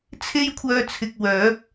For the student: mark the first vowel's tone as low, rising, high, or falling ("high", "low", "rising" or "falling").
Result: high